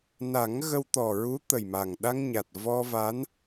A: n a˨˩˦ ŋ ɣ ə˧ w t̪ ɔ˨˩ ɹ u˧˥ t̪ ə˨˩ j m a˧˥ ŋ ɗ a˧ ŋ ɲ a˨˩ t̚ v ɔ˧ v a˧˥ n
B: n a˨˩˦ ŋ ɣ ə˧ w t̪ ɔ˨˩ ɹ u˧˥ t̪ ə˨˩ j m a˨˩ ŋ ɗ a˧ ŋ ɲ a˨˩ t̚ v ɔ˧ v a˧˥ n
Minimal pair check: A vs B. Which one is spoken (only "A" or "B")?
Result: B